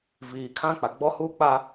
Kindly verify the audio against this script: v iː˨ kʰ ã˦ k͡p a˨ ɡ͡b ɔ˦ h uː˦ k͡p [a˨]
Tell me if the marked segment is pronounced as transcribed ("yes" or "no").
no